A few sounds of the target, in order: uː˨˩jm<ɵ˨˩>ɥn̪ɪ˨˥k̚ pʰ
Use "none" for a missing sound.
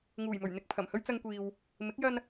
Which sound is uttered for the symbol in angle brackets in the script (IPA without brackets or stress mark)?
ɵ˨˩